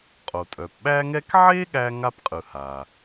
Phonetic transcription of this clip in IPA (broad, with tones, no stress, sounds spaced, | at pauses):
qʼ o˩ tʼ œ˩ p ɓ æ˥ ŋ ɛ˥ k ʕ e˥ ɠ æ˥ ŋ a˥ p qʼ ɯ˩ h a˩